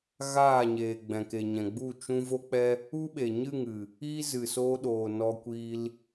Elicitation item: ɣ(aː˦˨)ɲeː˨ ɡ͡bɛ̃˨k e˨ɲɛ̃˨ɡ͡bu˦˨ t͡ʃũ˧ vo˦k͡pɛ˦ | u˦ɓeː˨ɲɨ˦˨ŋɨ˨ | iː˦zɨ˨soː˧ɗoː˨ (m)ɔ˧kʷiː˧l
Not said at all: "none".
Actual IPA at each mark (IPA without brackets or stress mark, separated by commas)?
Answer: aː˦˨, n